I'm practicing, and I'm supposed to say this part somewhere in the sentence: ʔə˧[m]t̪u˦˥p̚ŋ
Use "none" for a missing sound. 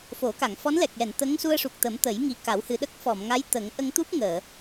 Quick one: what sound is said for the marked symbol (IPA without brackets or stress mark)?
ŋ